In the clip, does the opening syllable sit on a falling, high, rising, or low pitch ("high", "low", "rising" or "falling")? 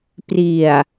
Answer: low